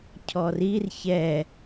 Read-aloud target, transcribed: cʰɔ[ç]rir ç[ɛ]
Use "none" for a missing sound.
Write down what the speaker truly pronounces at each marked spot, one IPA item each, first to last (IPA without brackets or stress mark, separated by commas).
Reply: none, ɛ